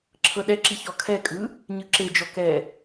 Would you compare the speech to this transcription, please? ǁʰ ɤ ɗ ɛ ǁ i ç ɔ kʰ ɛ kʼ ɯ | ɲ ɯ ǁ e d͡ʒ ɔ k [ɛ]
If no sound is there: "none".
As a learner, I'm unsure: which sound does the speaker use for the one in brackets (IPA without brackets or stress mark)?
ɛ